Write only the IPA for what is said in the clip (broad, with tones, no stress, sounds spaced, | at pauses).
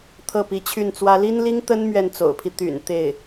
t̪ʰ ɤ˥˩ p i˧˥ t͡ɕʰ y˥˩ n t͡s w ä˥ l i˥ n l i˥ ŋ t̪ ə˥ n m ɥ ɛ˥˩ n t͡s o̰˨˩ ʊ̯ pʰ i˦ t̪ y̰˨˩ n t̪ e˥˩ ɪ̯